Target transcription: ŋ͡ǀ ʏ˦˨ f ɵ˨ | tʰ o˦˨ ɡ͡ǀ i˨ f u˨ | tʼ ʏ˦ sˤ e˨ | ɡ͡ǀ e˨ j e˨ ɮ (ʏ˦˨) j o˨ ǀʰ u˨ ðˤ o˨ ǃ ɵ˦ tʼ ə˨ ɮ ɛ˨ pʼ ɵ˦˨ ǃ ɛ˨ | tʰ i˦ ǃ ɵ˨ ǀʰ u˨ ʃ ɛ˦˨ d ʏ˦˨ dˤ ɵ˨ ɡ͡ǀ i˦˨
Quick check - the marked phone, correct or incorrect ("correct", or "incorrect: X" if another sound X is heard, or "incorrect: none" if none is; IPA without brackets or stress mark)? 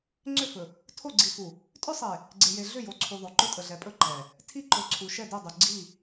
correct